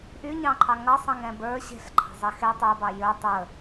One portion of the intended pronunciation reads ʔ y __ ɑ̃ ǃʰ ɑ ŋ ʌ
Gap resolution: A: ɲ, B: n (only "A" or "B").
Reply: A